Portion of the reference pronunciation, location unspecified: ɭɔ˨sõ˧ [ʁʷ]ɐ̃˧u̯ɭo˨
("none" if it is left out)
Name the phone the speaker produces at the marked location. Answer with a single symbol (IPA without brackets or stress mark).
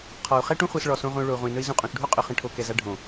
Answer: ʁʷ